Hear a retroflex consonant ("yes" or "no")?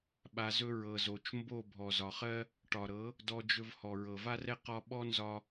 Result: yes